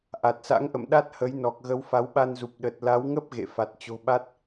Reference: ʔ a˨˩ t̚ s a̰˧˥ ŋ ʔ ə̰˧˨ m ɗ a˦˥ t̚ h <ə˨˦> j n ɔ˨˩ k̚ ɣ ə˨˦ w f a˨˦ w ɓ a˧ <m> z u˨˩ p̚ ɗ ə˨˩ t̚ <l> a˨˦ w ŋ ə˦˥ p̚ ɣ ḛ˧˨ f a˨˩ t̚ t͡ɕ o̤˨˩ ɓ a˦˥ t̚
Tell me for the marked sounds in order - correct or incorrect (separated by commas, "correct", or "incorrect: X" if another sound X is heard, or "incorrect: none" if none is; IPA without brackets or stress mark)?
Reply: correct, incorrect: n, correct